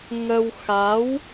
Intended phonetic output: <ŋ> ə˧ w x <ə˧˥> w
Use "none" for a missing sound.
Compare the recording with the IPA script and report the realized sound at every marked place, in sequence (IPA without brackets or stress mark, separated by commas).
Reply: ŋ, a˧˥